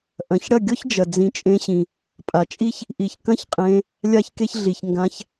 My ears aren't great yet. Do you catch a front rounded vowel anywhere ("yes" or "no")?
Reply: no